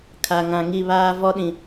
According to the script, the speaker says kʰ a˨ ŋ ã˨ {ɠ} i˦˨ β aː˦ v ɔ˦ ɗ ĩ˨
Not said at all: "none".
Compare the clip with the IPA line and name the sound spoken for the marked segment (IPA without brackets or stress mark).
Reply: ŋ